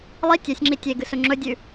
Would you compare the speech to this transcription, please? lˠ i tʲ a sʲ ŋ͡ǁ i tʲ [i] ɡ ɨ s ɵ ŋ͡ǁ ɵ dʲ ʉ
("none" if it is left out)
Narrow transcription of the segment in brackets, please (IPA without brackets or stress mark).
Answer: e